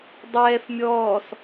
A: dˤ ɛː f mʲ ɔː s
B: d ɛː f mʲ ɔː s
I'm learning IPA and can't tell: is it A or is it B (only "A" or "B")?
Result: A